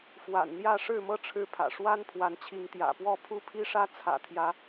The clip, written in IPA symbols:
f w a̰˨˩ n n̪ j ä˥˨ ʂ ɻ̩˥˨ m ɤ˦ ʈ͡ʂʰ ɻ̩˨˦ pʰ ä̰˨˩ ʂ w a˦ n pʰ w a˨˦ n t͡ɕʰ i˨˦ ŋ t̪ j ä̰˨˩ p w ɔ˥˨ pʰ u˦ pʰ i˦ ʂ ä˦ t͡sʰ ä̰˨˩ t̪ʰ j ä˨˦

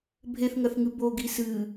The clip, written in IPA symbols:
bʱ e θ ŋ ɐ θ ŋ ɨ b o ɡ i s ɨ

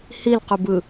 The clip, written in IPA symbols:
h i l q u b ɯ

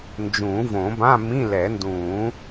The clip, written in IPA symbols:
n d͡ʒ ũː˨˩˦ v õ˨˩˦ b ã˧˥˧ m ĩ˧˥˧ l ɛ˨˩˦ n d ũː˨˩˦

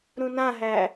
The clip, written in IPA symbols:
ɾ ũ n ã ɦ æ

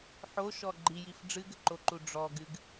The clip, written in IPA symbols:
ħ o ʃ ɔ ɡ͡ǃ i j i f ɖ͡ʐ ɨ ɡ ɘ ǃ o ǃ u ɖ͡ʐ ɔ ɡ ɨ ɡ

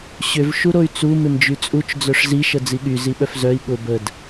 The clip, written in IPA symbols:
ɕ ʏ v ʃ u ɾ o y̯ t͡s u m ɪ m d͡ʒ y t͡sʼ u t͡ʃ d͡z œ ʂ z i ʃ ə d͡z i ɠ y z i ɓ œ f z œ i̯ ɠ ʊ b ə d

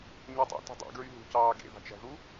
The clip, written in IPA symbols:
ɲ o tˤ ɑ̰ t ṳ dˤ ḛ ɡ ɹ y ɦ ṳ c ɑː ɡ ḛ ð ɑ̤ t͡ʃ æ̤ ð u

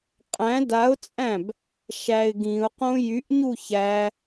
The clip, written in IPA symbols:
qʼ æ̃ d a ʊ̯ t͡sʼ æ̃ b | ʃ æ ɪ̯ ɡ ĩ ʊ̯ q õ j y ʔ ɲ u ç æ

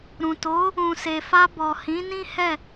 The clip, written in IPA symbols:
ɾ ũ˨ t o˨˦ | ũ˨ s e˨ f a˧ b ɔ˨ h ĩ˨˦ n ĩ˦ h ɛ˦˨

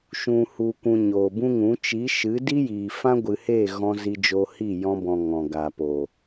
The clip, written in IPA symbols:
ʃ ũ˨ h u˨ kʷ ũ˨ ɲ oː˨ b ũ˦ ŋ ũ˨˦ t͡ʃ i˨˦ ʃ ɨ˨˦ d i˦ j iː˨ f ã˦ ɡʷ ɨ˨ h e˦˨ ɣ ɔ̃˧ z i˧ d͡ʒ o˧ h i˦˨ j ɔ̃˧ b ɔ̃˨ ŋ ɔ̃˨ ɡ aː˨ p o˨

